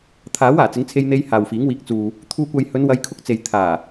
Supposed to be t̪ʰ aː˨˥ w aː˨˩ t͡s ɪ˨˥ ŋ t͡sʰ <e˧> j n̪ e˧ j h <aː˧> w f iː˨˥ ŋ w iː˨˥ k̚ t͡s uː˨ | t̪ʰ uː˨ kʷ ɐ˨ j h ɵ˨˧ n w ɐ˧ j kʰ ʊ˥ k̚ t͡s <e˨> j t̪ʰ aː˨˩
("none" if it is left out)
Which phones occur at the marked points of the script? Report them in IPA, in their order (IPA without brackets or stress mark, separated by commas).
e˧, aː˨, e˨